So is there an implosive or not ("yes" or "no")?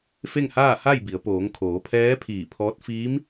no